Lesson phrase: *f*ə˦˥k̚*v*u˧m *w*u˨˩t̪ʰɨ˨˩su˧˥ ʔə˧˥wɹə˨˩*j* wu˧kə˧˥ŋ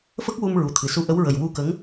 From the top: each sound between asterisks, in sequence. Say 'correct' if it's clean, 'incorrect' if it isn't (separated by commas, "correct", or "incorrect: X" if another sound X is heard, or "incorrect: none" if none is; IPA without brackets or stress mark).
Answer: correct, incorrect: w, incorrect: ɹ, correct